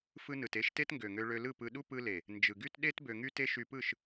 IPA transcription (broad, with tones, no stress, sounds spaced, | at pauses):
f ɯ˧ n ɯ˨ t e˦ ʃ t e˦ t ŋ ɡ ø˨ ŋ ø˧ ɭ ø˧ l ɯ˦˨ p ɯ˧ ɗ u˦ p ɯ˧ l e˨ | n d͡ʒ ɯ˨ ɡ y˦ t ɗ e˦ t b ø˧ ŋ y˦ t e˦ ʃ y˧ p ɯ˦˨ ʃ